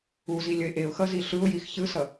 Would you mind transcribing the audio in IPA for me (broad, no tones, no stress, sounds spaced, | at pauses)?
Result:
u z i lʲ ʌ ɪ̯ ʔ e ʊ̯ x ʌ z i ɬ ɯ ʊ̯ j i x ç ɯ s ʌ